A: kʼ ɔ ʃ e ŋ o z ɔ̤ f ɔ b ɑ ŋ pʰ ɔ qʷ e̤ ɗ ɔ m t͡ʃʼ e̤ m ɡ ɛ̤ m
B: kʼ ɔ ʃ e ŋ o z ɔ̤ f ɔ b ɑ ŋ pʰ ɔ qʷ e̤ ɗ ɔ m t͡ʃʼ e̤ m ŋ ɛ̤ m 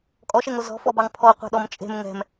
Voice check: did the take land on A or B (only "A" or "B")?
B